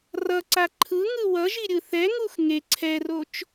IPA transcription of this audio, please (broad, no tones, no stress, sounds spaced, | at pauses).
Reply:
r ʌ ǀ a ǃʰ ɯ ŋ ɯ w ʌ ʒ i ɾʲ ɯ θ ɛ ŋ u x ŋ e ǀʰ ɛ r o t͡ʃ